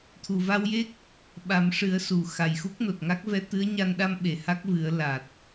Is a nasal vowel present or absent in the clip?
absent